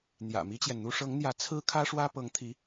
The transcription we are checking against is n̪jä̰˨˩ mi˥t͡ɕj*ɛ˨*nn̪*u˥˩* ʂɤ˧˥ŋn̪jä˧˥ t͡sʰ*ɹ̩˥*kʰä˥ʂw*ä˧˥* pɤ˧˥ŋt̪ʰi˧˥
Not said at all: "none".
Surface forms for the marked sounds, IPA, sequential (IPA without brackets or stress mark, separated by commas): ɛ˨, u˥, ɹ̩˥, ä˥